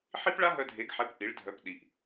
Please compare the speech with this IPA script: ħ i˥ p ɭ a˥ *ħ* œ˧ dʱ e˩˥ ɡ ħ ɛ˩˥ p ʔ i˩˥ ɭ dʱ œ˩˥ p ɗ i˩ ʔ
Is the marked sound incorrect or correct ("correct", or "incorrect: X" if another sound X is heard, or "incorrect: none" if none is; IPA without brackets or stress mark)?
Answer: incorrect: ɦ